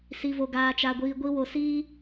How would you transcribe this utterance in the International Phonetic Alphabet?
si˧vo˧ɡaː˧t͡ʃa˧ ɡʷiː˧ɡʷi˦ wo˧siː˦

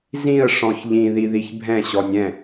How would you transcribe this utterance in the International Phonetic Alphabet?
zĩə̯ ʂɔ̃çʎĩ ðiðiçbʱɛ̃ ɕɔnʲɛ̃

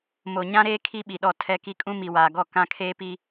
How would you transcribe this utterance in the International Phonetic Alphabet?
mo˨ ɲã˦ɾeː˦ kʰi˦ɓi˨ɗɔ˦˨ tʰɛ˦ki˦ kʼũ˦mi˨waː˨ɡɔ˦˨ kã˦kʰeː˦pi˦

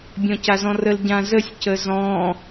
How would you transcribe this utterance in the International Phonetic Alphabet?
bʲɔ̃cazɔ̃rəl ɟãzəsʲ cəzɔ̃

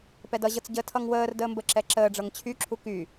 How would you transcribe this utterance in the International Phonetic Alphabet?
pɛdʌʑɤt͡s ɟətʰʌŋ wəːr dəːmbəǁɛ ǁəːɖ͡ʐɤŋ t͡ɕʰyǁʰu ky

